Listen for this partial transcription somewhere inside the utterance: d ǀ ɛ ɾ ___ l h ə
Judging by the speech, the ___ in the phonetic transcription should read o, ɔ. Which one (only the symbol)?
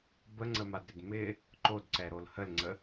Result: o